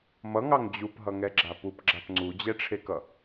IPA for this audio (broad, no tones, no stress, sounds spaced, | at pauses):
m ʌ ŋ ɑ ŋ d͡ʑ u p ɦ ʌ ŋ ɛ ɡ͡ǁ a p u p ɡ͡ǁ a p ŋ͡ǀ u d͡ʑ ɛ ʈ͡ʂʰ e k ʌ